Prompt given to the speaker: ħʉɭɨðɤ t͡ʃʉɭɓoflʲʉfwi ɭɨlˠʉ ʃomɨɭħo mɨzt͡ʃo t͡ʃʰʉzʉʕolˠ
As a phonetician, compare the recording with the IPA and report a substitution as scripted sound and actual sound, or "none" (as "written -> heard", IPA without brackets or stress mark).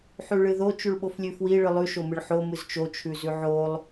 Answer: ɤ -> o